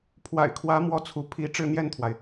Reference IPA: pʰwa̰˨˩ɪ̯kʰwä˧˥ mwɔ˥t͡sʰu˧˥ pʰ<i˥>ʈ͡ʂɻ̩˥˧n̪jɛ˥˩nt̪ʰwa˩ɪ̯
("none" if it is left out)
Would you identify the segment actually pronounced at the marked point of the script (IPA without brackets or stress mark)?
i˧˥